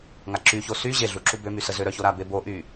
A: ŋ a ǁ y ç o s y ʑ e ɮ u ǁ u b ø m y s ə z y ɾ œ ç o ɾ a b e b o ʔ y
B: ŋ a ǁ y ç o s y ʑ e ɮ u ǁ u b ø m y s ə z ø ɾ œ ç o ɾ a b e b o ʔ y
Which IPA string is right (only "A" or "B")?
B